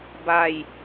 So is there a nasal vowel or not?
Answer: no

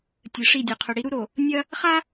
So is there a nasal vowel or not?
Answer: no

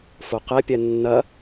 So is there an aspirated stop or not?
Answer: no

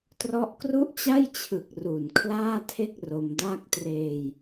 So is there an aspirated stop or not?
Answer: yes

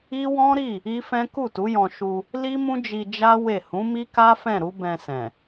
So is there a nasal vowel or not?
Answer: yes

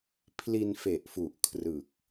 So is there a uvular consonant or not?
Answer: no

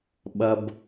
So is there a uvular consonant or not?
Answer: no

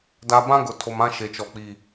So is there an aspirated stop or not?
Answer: yes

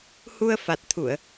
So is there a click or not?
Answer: no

